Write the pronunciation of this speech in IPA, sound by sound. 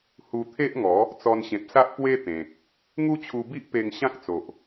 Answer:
h u˧ t̪ʰ e˦ ʔ ŋ ɔ˨˦ | t͡s ɔ˧ n ɕ ẽ˨ p̚ s a˦ ʔ p w e˦ t̪ ẽ˨ k̚ | ŋ u˦ t͡ɕʰ u˧ b i˦ ʔ p e˧ ŋ ɕ ã˦ k̚ t͡s o˨ ʔ

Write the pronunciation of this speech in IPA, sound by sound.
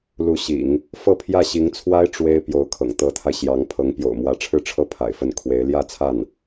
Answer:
l u˧˥ ɕ ḭ˨˩˦ ŋ | f ɤ˥˧ pʰ j ä˥˩ ɕ i˧˥ ŋ t͡sʰ w a˥ ɪ̯ ʈ͡ʂ w e˥ ɪ̯ p j o˧˥ ʊ̯ kʰ ɤ̰˨˩ ŋ t̪ ɤ˧˥ t̪ʰ a˧ ɪ̯ ɕ j ɑ˧˥ ŋ pʰ ɤ˧˥ ŋ p j o̰˨˩ ʊ̯ m w ä˧˥ ʈ͡ʂʰ ɻ̩˥˧ ʈ͡ʂʰ ɤ˥˩ pʰ a̰˨˩ ɪ̯ f ə˥˩ n kʰ w e˧˥ ɪ̯ l j ä˥˧ t͡sʰ a˥˩ n

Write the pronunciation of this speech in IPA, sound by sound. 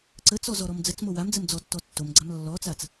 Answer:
ǀ ə t͡s ɔ z ɔ ɾ ɔ m d͡z ə t͡s m o w a m d͡z ə m d͡z ɔ tː ɔ tː o m ɡ͡ǀ a m lː ɔ t͡s a t͡s

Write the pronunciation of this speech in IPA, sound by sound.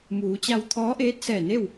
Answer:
m uː˩˧ t͡ɕ a˧ w t̪ʰ ɔː˧˥ ʔ eː˧˥ t̚ s ɛː˧˩ n e˥˨ w

